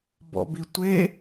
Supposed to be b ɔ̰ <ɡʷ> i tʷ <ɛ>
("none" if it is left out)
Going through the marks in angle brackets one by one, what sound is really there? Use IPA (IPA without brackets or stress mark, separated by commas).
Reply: b, e